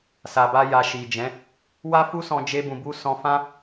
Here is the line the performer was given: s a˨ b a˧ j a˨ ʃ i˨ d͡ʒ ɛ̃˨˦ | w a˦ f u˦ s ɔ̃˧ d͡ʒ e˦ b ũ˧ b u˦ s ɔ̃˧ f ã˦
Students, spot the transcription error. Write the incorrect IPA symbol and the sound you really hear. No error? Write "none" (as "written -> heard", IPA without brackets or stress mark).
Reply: none